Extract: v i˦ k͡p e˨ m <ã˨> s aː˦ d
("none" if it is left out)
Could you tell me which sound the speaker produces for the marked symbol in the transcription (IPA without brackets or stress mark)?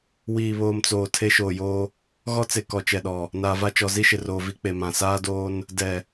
ã˨